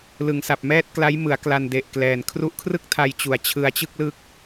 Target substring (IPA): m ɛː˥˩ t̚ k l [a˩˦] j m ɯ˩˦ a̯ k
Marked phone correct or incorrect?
incorrect